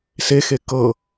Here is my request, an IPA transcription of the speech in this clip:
sexe kɤ

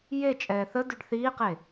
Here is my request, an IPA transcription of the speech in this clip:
jet͡ʃʼɛː θədyɖ θiːqe

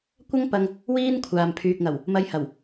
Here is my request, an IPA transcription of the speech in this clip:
kʷɐ˥ŋpɐ˧ŋ | wiː˥nkʷʰaː˨mpʰyː˨k̚ŋɐ˨˩w | mɐ˧jhɐ˨˩w

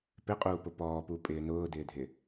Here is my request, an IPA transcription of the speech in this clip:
pɪqʼuːpʊ pɔːpupʼɪː nʊːdɪːdʱɪ

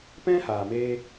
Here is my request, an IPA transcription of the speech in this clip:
pɛ̃˦haː˨meː˧

